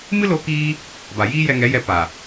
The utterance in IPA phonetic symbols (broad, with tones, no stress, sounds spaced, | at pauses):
m ɨ˦ l o˧ k iː˦ | b a˨ j iː˦ j ɛ˧ ŋ ɛ˨˦ j ɛ˧ p a˨